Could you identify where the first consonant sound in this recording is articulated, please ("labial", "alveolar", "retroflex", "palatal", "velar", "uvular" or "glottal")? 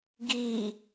velar